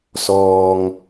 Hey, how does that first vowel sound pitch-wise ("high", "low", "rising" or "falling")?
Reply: low